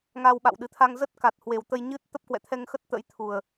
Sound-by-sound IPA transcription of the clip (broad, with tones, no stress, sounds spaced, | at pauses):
ŋ a˧ w ɓ a̰˧˨ w ɗ ɨ˨˩ t̪ʰ a˧ ŋ z ə˦˥ t̚ k a˨˩ t̚ h w e˨˩ w t̪ ə˧ j ɲ ɨ˦˥ t̚ t̪ ə˦˥ p̚ k w ɛ̰˧˨ t̪ʰ ɛ˧ ŋ x ə˦˥ t̚ t̪ ə̰˧˥ j t̪ʰ u˨˩ ə̯